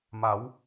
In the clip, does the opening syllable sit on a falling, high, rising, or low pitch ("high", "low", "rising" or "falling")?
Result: rising